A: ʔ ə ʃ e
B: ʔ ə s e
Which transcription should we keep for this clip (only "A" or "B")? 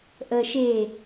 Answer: A